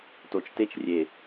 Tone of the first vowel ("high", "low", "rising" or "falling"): low